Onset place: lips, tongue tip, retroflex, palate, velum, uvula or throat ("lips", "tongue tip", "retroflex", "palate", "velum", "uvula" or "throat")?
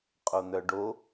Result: uvula